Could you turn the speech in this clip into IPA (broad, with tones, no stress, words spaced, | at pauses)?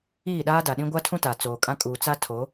iː˦˨ɗaː˦da˨ɗĩ˦ ɡʷa˦tʰũ˦ta˨ t͡soː˨kʼã˦ kʼuː˨t͡sa˦ tʰo˨˦